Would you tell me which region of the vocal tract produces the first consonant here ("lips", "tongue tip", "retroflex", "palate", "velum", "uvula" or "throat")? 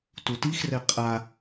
tongue tip